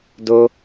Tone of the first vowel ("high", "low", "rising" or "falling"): high